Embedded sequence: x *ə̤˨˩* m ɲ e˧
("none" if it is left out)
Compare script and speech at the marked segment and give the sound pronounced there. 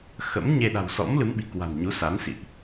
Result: ə̰˧˥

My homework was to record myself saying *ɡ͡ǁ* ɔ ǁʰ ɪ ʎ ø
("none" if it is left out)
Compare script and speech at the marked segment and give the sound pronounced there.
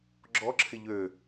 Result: ɡ͡ǁ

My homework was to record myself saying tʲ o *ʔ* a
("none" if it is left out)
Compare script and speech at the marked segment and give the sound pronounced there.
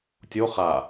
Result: χ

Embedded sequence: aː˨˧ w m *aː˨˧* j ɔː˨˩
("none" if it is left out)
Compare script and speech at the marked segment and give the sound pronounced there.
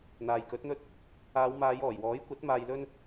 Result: aː˨˧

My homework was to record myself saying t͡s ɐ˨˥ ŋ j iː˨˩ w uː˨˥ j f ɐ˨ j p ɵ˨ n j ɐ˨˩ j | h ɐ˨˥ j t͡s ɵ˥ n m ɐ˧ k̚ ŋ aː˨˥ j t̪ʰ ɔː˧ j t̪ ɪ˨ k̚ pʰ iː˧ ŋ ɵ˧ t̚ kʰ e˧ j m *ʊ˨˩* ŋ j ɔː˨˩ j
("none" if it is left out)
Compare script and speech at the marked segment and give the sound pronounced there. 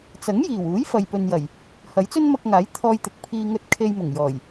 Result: ʊ˨˩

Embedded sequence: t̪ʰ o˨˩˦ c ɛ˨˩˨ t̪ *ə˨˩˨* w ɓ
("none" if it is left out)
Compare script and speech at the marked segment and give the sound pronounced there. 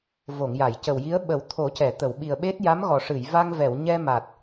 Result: ə˨˩˨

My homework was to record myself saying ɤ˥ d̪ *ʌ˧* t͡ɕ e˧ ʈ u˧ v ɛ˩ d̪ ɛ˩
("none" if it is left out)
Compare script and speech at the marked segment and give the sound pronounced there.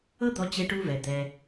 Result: ɔ˧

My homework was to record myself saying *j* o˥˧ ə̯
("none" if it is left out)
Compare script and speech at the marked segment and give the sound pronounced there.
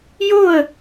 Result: j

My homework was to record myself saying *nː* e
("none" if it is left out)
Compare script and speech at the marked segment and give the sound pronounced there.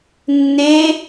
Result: nː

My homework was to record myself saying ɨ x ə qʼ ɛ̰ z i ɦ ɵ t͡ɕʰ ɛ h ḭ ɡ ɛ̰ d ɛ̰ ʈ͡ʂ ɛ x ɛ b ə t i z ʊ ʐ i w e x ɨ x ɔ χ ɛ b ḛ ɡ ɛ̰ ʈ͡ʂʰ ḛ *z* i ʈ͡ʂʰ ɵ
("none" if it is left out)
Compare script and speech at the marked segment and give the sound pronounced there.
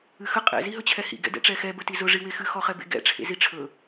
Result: z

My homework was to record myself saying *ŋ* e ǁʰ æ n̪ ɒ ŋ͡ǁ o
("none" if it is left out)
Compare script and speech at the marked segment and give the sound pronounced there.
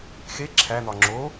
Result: x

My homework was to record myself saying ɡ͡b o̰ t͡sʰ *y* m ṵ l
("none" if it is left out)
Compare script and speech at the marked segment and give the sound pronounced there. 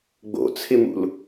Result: ɪ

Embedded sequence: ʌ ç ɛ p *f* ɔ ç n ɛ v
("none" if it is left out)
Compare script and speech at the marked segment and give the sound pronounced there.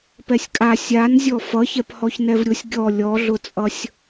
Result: h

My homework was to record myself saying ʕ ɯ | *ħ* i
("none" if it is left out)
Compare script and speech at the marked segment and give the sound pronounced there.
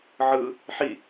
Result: ħ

